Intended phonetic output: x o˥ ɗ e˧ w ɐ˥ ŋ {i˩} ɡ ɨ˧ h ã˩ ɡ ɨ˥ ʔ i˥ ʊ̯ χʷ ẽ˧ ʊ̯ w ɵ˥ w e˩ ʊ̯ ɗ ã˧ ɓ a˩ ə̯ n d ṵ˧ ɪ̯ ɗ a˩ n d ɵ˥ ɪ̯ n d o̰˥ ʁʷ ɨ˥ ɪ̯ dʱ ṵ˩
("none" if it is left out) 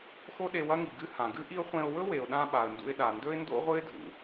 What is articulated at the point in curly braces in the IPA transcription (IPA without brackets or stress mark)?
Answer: i˩